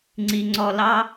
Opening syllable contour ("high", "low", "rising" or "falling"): low